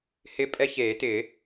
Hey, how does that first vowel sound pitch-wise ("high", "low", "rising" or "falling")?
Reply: high